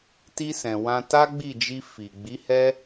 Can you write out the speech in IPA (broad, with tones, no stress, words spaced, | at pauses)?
ti˧sɛ̃˨ wã˧ta˦ɡ͡bi˦˨d͡ʒi˧ fi˨ ɡ͡bi˨˦ hɛ˦